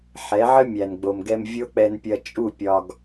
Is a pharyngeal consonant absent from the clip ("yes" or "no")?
no